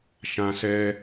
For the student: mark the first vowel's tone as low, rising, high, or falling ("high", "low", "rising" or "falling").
low